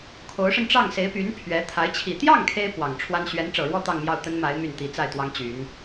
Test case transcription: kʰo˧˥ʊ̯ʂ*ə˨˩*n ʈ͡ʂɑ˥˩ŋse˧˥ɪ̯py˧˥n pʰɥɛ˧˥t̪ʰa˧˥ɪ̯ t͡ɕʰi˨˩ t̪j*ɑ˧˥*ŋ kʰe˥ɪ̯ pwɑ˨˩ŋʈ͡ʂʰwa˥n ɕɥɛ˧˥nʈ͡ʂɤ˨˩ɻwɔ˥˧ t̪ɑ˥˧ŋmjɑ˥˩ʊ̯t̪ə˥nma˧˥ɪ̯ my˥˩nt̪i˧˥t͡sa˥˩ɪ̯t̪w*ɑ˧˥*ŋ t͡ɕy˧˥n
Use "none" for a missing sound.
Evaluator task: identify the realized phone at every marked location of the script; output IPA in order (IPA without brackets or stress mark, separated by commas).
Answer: ə˧, ɑ˥˩, ɑ˥